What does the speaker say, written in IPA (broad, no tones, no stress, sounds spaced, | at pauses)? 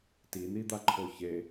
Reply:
t i n̪ i d̪ a ǃʰ o ç e